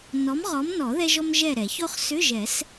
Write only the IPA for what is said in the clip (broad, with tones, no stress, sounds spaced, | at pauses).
n ɔ˨˥ m ʁ ɔ˨˥ m n ɔ˨˩˦ ð ɛ˥ ʒ ɔ˥ m ʒ ɛ˦˨ ɾ ɛ˨˩˦ ç o˥ χ s ʏ˧˥˧ ʒ ɛ˨˩˦ s